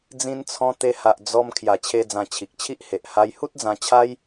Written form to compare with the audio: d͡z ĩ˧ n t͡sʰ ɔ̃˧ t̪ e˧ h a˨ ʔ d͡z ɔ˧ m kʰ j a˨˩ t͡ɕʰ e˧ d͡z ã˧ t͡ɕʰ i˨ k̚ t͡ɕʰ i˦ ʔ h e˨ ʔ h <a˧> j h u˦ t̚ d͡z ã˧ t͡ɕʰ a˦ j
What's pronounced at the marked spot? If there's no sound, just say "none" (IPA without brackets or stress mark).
a˧